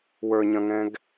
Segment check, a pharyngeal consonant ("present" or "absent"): absent